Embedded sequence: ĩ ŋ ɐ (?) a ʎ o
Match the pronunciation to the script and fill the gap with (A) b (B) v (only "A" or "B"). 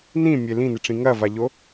B